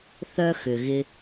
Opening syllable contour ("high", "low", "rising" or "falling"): low